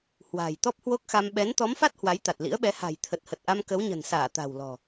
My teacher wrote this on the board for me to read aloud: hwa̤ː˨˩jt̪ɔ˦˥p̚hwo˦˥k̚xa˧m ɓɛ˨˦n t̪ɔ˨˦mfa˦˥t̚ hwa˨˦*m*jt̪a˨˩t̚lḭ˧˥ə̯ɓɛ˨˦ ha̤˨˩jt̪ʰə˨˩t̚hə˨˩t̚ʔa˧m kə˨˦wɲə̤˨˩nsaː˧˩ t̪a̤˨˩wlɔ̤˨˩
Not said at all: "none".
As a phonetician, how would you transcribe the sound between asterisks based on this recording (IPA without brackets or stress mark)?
none